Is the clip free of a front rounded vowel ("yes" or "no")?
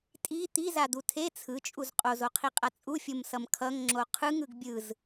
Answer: yes